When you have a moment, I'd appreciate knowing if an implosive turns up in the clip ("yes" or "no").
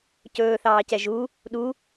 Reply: yes